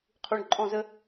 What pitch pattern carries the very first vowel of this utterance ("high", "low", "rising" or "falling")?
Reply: low